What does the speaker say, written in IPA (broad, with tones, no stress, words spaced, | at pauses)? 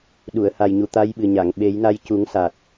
ɗu˨˩˨ə̯ ha˨˩jɲu˨˩ t̪a˧jɓɨ˨˩ɲa˨˩˨ŋ ɓe˨˩˦jna˧jcu˨˩˦ŋsa˨˩t̚